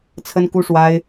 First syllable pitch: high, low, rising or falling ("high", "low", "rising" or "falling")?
high